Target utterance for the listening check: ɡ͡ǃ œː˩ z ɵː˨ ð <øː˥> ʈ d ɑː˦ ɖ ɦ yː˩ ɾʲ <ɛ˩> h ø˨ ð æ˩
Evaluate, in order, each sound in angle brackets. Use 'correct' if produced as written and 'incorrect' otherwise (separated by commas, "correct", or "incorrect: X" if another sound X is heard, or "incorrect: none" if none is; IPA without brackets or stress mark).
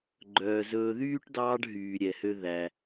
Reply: incorrect: yː˥, correct